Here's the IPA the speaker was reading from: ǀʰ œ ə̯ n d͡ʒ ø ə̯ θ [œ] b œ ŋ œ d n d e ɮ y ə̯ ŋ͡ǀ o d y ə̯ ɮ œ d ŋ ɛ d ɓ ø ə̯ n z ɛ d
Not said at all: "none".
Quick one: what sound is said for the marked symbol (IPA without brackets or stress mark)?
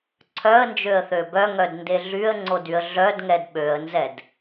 ø